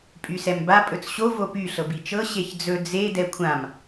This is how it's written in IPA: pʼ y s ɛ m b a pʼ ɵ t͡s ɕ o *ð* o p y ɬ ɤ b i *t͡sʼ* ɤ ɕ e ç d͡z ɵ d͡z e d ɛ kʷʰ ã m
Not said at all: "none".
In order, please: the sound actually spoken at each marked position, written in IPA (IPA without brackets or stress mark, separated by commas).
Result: v, t͡ʃ